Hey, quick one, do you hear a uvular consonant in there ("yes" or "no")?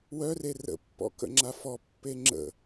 no